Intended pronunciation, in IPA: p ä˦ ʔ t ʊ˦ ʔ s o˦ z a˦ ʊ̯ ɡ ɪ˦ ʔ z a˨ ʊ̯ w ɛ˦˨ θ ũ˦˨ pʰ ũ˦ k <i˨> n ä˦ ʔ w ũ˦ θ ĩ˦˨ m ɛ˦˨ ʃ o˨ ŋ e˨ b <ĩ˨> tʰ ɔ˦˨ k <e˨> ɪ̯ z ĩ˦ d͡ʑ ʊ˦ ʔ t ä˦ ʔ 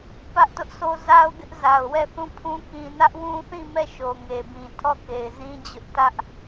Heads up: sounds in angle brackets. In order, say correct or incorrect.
incorrect: ĩ˨, correct, correct

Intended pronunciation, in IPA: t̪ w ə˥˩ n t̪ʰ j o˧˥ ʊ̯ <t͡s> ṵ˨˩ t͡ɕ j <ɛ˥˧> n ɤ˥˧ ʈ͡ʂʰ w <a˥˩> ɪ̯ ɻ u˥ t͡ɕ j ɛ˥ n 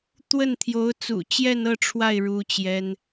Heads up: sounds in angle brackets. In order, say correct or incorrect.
correct, correct, correct

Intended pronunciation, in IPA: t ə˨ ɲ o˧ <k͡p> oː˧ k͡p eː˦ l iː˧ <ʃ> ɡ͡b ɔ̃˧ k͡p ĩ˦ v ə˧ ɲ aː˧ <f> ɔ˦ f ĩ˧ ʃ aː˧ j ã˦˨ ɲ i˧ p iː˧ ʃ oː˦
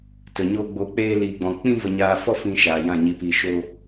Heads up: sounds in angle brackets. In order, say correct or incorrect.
incorrect: ɡ͡b, incorrect: none, correct

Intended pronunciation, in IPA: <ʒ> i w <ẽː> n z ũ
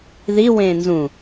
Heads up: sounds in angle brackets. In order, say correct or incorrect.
incorrect: ð, correct

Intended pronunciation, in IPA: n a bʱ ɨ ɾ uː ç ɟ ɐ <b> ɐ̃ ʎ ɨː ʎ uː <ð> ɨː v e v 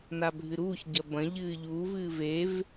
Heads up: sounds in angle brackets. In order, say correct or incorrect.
correct, incorrect: v

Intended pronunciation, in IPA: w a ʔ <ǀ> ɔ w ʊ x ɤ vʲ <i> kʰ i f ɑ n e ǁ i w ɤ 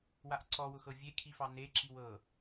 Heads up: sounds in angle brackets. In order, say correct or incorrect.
correct, incorrect: e

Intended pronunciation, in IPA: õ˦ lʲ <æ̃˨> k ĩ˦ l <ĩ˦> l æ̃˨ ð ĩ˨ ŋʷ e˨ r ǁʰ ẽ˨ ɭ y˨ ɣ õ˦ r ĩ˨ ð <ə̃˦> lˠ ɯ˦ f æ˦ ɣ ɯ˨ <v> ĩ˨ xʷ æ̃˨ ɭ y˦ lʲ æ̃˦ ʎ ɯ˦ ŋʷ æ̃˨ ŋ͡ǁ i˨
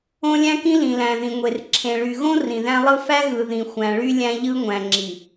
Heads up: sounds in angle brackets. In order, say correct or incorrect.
incorrect: æ̃˦, incorrect: ĩ˨, incorrect: æ̃˦, incorrect: ð

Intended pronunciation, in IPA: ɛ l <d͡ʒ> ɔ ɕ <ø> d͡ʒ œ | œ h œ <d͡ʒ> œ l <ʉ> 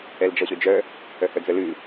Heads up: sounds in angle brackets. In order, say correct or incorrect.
correct, correct, incorrect: d͡z, correct

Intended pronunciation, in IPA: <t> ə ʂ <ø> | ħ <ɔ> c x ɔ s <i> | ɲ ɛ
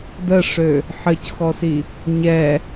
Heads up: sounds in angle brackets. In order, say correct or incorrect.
incorrect: d, correct, incorrect: ə, correct

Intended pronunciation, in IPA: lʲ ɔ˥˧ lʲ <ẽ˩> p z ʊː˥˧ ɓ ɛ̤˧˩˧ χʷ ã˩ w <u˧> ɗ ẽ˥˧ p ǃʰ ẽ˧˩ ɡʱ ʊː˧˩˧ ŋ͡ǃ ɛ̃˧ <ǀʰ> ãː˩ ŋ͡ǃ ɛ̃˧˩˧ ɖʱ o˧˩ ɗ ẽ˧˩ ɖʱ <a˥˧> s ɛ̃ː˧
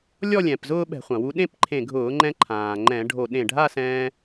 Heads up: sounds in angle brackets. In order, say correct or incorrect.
incorrect: ɛ̃˩, correct, incorrect: ǃʰ, correct

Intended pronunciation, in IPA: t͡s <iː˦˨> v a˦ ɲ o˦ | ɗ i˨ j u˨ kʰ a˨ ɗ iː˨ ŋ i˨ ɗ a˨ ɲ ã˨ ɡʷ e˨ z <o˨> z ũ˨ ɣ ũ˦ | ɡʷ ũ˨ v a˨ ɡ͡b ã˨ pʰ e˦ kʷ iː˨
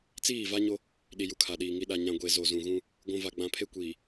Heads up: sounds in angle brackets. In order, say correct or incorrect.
correct, correct

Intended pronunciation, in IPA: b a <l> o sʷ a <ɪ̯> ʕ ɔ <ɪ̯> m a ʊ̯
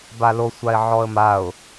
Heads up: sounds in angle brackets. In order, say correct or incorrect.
correct, correct, incorrect: ə̯

